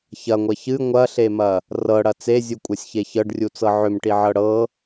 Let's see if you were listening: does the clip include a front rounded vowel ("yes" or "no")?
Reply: yes